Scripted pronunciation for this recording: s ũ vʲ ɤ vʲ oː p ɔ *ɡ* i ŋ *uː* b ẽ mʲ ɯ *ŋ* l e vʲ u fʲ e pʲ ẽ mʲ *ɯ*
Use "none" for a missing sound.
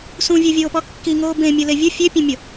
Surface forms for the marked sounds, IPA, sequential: kː, oː, none, ɤ

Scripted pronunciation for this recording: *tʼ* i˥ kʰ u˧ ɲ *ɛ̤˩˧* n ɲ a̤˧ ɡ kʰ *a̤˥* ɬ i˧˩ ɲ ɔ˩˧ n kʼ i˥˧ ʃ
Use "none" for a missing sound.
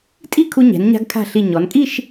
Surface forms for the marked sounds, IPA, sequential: tʼ, ɛ̤˩˧, a̤˧˩

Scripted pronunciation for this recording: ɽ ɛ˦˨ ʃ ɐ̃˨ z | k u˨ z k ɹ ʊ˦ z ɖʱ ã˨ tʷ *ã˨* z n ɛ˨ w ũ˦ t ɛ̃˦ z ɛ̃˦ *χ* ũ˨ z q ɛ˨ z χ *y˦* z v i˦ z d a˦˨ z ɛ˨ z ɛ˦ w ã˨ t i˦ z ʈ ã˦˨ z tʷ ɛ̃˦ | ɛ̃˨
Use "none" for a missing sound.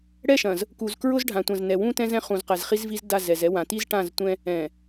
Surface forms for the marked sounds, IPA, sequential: ã˨, χ, i˦

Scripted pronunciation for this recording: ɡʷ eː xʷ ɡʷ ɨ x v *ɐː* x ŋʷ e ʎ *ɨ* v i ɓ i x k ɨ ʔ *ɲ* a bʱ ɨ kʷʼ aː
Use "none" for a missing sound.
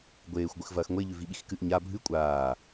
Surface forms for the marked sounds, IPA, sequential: ɐː, ʉ, ɲ

